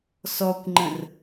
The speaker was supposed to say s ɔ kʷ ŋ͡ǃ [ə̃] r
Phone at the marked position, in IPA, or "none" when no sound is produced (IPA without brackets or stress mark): ə̃